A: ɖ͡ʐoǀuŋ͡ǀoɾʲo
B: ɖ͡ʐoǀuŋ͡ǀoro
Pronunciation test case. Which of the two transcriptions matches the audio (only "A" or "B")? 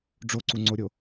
A